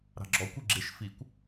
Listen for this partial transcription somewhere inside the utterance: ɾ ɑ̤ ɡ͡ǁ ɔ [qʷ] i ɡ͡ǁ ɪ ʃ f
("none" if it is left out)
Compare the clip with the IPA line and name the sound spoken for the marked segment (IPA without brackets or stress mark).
kʷ